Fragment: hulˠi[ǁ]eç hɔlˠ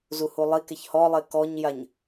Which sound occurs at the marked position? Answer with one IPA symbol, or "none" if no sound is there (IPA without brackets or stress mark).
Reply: k